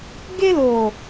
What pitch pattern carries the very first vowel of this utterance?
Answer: high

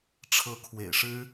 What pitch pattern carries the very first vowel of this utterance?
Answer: rising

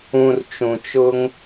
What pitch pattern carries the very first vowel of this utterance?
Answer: low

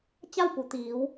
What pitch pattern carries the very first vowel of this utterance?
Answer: falling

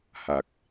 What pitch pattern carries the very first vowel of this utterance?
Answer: low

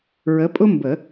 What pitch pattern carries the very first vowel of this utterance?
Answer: rising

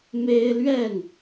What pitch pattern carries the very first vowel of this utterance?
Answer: high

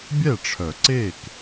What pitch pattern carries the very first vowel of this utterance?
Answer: falling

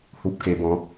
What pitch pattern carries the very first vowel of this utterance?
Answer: low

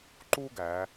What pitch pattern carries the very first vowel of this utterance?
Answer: high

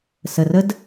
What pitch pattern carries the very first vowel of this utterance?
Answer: low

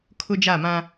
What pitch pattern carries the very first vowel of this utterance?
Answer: high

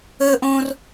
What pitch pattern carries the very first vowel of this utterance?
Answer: high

